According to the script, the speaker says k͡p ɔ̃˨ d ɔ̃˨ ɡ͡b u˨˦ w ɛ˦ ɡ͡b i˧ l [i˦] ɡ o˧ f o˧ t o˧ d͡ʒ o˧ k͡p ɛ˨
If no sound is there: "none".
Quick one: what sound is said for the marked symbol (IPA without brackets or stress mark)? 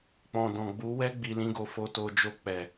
ĩ˦